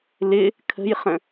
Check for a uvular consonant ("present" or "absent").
present